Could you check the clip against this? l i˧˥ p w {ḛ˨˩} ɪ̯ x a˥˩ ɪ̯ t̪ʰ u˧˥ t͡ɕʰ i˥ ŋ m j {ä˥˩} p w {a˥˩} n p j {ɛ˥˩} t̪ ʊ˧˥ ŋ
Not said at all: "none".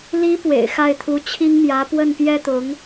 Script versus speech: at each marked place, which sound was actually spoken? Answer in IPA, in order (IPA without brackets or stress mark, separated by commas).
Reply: ḛ˨˩, ä˧˥, ə˥˩, ɛ˥